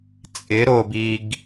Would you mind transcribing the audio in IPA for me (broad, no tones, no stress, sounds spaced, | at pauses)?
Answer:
t͡sʼ ɪ ɾ o b i ɡ